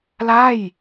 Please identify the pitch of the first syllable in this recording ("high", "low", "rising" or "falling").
falling